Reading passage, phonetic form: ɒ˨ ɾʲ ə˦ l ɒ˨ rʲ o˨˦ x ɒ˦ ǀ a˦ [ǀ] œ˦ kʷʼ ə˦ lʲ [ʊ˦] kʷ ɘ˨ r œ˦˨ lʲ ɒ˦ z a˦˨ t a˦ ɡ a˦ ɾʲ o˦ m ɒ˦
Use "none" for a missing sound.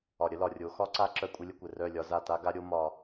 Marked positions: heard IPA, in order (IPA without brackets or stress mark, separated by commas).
ǁ, ə˦